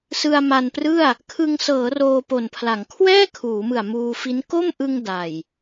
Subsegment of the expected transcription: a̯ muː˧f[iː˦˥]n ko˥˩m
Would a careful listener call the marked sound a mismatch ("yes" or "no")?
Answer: yes